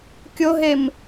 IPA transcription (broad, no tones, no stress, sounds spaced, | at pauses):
kʲ o ɦ e m